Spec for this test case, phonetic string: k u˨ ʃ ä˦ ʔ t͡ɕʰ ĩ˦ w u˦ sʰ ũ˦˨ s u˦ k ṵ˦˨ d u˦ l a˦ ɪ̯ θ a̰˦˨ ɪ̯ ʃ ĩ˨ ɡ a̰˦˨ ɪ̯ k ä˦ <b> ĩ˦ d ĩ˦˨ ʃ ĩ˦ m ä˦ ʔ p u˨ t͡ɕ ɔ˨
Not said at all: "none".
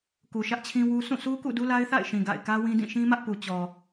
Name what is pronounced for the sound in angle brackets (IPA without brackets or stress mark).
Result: w